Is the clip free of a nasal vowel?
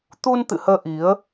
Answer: yes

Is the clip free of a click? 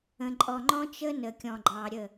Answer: no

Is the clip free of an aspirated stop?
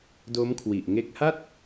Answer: no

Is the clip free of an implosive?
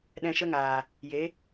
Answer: no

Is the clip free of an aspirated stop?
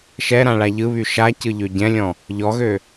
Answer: yes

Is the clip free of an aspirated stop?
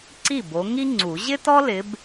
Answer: yes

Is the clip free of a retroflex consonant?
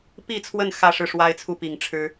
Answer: no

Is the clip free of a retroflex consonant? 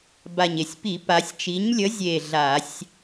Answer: yes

